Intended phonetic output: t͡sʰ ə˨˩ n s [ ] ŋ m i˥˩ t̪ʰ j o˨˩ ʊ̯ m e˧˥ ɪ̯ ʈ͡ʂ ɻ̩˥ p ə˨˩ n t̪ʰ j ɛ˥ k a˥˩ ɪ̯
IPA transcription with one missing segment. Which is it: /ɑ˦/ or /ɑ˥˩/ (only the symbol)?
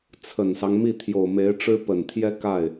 ɑ˦